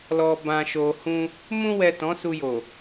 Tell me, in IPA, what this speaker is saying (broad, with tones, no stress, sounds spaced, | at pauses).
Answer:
l ɔ˨ b ã˨ ʃ o˨ h ũ˧ | m ũ˧ w ɛ˨ t ɔ̃˨˦ s u˧ j o˨